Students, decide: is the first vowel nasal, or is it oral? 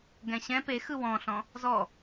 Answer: nasal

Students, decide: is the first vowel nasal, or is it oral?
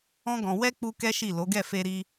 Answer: nasal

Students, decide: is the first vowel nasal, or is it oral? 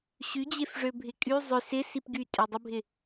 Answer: oral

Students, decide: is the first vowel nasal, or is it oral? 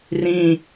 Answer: nasal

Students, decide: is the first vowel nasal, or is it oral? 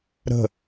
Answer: oral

